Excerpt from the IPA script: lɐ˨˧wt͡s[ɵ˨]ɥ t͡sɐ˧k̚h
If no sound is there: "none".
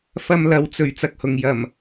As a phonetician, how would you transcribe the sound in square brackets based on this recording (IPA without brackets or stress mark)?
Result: ɵ˨˩